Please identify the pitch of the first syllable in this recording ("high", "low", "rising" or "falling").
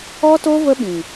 high